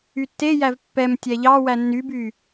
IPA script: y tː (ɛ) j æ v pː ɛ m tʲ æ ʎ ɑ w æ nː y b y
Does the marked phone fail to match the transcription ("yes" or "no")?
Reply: yes